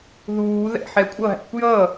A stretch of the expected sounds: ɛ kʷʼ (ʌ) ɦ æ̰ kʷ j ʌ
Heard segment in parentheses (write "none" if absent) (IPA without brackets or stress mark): ʌ